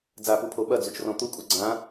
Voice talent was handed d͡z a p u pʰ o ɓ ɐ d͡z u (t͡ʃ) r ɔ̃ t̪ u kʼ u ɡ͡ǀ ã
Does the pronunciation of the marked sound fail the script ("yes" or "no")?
no